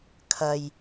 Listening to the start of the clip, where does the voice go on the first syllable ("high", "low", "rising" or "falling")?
low